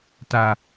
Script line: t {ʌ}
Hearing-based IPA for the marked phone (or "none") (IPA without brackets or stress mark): a